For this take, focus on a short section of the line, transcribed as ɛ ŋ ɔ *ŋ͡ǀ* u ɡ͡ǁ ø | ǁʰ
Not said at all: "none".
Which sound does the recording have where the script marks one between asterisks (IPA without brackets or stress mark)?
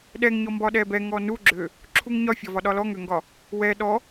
n